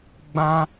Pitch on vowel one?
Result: high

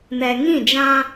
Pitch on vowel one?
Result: low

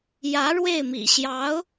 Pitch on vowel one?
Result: rising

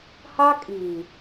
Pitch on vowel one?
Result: high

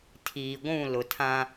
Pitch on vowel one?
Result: low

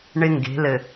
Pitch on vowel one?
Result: high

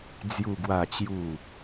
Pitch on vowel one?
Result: low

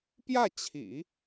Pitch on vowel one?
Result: falling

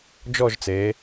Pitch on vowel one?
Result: falling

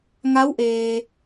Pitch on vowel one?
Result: rising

